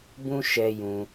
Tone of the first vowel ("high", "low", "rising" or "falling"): high